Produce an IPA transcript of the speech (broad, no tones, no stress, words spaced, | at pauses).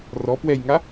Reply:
rɔ pwɛjŋa